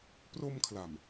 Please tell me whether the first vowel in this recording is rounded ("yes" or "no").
yes